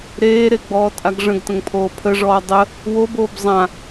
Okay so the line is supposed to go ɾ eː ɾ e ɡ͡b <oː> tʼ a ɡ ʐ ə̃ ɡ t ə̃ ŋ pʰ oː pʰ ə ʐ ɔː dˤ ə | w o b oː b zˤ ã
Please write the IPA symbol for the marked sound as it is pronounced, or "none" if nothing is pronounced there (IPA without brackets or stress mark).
ɔː